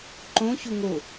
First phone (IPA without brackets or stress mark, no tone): ǃ